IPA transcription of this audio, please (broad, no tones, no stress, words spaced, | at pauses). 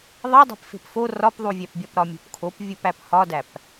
ðˤedˤe̤p fe̤pfo rɒpðˤuvʲæpbʲɒp ɾɒmʲṳpkʰop vʲupæphɒdæp